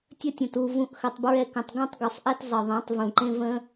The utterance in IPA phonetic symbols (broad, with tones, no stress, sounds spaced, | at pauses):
tʲ ə˦ tʲ ə̃˨ t u˨ v ũ˧ ʔ x ə˧ tˤ b ɹ ɛ˦ k ə̃˧ tˤ ɡ ũ˦ tˤ ɡ u˨ sˤ ʔ ɛ˦ t zˤ ə˨ ðˤ ɛ̃˨˦ tˤ v ũ˨ ǃ ẽ˦ v ə̃˦